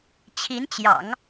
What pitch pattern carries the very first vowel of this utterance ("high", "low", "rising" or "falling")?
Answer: rising